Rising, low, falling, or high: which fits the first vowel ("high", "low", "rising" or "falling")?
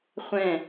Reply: falling